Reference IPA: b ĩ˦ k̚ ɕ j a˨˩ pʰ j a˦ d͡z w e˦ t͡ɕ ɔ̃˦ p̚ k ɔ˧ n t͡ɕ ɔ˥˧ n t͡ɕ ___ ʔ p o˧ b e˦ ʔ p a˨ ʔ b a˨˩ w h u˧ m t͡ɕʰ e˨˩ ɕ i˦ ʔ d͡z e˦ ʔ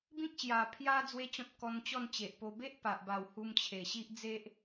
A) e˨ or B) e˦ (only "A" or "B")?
A